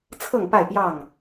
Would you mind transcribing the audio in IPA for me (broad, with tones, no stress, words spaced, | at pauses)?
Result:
t͡sʰɤ˥˨ŋpa˥˨ɪ̯pjɑ˥˨ŋ